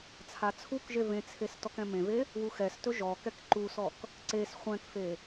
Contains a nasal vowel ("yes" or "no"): yes